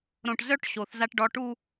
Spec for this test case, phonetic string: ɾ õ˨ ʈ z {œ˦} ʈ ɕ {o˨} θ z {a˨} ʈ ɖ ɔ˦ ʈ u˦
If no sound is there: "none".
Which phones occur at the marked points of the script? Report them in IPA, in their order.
œ˦, o˨, a˦

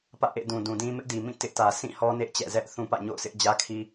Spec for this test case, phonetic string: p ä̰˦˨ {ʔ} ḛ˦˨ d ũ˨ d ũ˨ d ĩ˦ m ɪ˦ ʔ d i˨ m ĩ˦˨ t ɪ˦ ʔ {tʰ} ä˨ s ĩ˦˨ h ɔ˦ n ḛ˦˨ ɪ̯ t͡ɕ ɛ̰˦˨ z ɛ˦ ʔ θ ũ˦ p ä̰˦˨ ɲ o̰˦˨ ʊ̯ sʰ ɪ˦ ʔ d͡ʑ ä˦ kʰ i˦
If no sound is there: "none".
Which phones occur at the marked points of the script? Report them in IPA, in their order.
ʔ, t

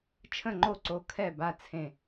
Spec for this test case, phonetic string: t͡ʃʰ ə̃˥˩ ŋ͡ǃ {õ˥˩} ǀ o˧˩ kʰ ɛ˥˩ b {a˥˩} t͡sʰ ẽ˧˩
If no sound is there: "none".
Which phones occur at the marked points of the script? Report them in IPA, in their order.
o˥˩, a˥˩

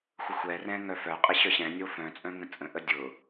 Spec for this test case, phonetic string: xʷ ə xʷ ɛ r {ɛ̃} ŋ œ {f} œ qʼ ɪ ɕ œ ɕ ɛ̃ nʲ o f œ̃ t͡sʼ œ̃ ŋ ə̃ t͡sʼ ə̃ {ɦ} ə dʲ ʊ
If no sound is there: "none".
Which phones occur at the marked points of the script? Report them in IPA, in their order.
ɛ̃, f, ʔ

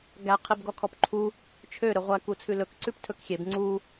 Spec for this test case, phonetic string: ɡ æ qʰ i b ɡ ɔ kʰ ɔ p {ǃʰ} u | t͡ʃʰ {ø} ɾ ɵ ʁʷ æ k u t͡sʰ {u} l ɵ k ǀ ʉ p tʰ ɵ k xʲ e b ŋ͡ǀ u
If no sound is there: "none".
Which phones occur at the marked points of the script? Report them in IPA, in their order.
ǃʰ, ø, ʉ

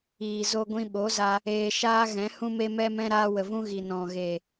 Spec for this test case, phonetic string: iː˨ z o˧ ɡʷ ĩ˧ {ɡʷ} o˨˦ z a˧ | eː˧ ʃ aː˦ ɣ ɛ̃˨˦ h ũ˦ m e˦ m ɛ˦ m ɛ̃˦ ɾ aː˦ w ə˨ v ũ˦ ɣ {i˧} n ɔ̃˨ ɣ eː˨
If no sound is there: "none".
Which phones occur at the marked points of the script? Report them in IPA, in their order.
ɓ, i˨

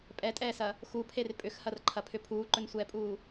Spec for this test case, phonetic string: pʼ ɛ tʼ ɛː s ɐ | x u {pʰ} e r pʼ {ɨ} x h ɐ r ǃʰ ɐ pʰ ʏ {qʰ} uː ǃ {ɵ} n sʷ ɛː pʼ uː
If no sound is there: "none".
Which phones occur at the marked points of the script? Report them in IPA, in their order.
pʰ, ʏ, pʰ, ɵ

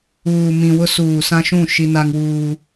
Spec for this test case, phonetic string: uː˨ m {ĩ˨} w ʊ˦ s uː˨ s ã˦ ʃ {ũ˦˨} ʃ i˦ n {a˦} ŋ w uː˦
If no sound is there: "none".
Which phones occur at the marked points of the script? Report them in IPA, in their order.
ĩ˨, ũ˦˨, a˦

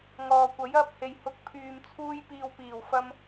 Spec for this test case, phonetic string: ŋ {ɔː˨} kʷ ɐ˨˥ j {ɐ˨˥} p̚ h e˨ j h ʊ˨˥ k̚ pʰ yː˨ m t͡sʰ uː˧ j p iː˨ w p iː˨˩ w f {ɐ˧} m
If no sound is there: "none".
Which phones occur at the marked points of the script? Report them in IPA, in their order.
ɔː˨, ɐ˧, ɐ˧

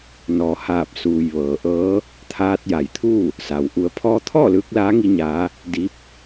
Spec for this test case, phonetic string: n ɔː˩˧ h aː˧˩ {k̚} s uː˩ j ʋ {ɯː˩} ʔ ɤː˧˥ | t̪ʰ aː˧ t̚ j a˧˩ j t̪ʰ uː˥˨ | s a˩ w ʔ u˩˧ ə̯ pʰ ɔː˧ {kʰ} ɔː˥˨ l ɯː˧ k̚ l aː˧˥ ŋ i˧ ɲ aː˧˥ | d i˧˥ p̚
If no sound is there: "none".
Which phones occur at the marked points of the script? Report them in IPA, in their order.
p̚, ɤː˩, t̪ʰ

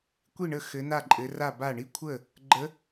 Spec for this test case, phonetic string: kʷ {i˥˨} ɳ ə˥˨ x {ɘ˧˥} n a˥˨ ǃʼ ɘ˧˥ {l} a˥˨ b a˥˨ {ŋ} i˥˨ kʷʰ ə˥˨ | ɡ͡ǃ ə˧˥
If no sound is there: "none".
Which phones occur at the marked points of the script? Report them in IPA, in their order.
i˥˨, ɘ˧˥, r, ɳ

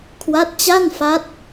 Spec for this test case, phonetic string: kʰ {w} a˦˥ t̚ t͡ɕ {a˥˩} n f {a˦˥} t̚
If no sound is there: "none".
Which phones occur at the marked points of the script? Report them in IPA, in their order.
w, a˥˩, a˦˥

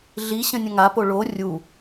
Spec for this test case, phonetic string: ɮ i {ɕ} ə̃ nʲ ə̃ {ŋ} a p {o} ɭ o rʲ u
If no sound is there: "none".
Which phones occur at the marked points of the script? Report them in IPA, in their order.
ɕ, ŋ, o

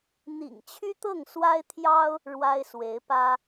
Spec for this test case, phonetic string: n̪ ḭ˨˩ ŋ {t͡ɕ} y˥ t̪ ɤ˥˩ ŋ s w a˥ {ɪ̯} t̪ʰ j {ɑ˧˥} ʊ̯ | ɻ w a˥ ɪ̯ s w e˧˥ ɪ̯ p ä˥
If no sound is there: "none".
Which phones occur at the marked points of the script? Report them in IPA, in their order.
t͡ɕʰ, ɪ̯, ɑ˥

